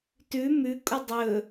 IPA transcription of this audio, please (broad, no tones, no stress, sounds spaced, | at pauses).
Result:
t ʉ m ʉ kʼ u dˤ ɵ